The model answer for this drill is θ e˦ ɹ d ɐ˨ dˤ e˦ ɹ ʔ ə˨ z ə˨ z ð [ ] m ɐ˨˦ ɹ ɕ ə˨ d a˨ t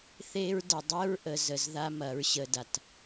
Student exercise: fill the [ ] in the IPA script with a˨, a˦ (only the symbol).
a˦